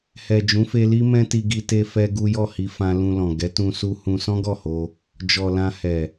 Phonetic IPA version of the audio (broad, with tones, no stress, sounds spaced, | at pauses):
h ɛ˨ d͡ʒ ũ˨˦ f e˧ l i˦ m ɛ̃˦ t i˧ ɡ i˧ t e˧ f ɛ˦ ɡ u˦ j ɔ˦˨ h i˧ f ã˧ l ũ˧ l ɔ̃˨ ɡ ɛ˨˦ t ũ˧ s u˦ h ũ˧ s ɔ̃˦ ɡ ɔ˦˨ h o˧ | d͡ʒ ɔ˨ l ã˧ h ɛ˨